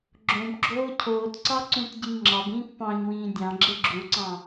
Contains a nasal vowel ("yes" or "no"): yes